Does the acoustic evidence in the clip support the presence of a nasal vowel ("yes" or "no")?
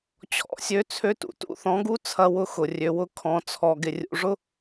yes